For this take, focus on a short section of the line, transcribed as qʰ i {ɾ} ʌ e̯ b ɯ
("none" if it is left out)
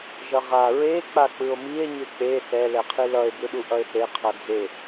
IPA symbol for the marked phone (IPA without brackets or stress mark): l